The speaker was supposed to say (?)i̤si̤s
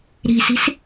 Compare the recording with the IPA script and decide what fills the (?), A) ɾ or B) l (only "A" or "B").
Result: A